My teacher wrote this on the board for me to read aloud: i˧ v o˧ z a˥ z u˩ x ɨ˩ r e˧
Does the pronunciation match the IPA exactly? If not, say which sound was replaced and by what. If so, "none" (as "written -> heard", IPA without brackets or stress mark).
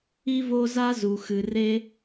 none